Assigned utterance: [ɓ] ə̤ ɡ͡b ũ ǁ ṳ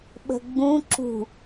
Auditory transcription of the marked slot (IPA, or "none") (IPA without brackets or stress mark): ɓ